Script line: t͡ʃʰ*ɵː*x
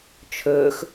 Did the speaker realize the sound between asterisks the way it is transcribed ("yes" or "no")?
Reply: yes